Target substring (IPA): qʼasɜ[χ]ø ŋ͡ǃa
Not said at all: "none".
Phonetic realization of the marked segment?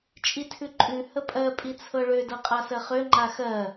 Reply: χ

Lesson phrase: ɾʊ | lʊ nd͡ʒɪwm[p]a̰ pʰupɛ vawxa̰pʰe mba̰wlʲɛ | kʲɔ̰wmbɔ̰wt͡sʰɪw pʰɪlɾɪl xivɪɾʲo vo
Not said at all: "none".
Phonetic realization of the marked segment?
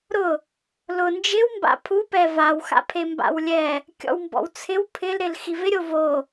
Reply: b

